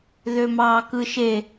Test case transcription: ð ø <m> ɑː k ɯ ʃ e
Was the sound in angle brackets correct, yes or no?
yes